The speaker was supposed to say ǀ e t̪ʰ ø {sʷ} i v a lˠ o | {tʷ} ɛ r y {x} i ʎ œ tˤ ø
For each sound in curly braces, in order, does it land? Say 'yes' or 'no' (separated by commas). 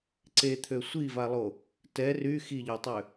yes, no, yes